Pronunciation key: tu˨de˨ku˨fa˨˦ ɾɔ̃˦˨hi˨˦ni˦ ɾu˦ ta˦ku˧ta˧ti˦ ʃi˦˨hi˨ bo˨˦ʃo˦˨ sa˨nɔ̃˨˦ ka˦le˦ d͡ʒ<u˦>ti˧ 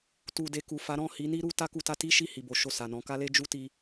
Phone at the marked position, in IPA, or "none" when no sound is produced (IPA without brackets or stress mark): u˦